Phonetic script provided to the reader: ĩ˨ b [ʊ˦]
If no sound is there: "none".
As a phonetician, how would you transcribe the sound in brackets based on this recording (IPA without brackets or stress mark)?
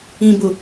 ʊ˨